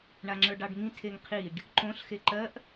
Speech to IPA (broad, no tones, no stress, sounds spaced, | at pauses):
ɳ a ŋ͡ǁ ə˞ ɖ ɑ ɖ ŋ ĩ tʰ e ŋ qʰ i ɖ | ǃ õ ɬ x e ǃ ɜ ʔ